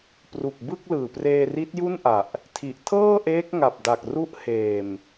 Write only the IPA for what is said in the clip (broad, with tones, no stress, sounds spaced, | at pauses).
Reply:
p r u˨˩ k̚ b ɯ˥˩ k̚ l ɯː˨˩ p r eː˧ r i˦˥ t̚ j u˥˩ n ʔ a˨˩ ʔ | tʰ i˨˩ ʔ tʰ ɤː˥˩ ʔ eː˦˥ k̚ ŋ a˨˩ p̚ d a˨˩ k̚ r u˦˥ ʔ h eː˨˩ m